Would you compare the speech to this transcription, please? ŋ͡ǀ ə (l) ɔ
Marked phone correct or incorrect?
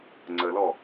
correct